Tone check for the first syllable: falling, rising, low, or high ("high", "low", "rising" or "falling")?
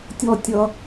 high